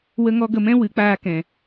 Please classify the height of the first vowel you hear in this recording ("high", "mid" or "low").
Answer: mid